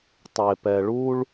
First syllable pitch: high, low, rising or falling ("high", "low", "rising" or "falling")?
low